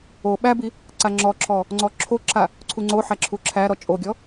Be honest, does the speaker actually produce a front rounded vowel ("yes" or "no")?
no